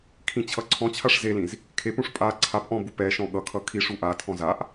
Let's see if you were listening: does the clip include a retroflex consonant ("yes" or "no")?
yes